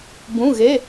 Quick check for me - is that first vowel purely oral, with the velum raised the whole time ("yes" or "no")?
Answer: no